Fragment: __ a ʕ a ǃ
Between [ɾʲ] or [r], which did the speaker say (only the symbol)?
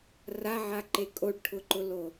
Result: r